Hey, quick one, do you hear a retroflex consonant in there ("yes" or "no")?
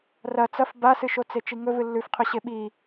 no